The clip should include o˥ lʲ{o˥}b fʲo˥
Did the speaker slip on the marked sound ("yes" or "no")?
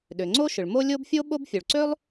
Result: no